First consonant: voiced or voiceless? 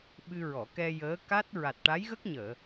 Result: voiced